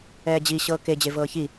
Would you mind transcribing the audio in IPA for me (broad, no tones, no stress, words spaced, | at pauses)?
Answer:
ɛːd͡ʑi ɕɤːke d͡ʑevɤːçi